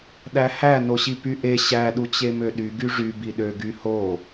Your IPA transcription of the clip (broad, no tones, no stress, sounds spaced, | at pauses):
ɗ æ h æ n o ɕ i p y ʔ e ɕ æ ɗ u t͡ɕ e m ø ɗ y ɡ y ʐ y b i ɗ ø ɡ y h o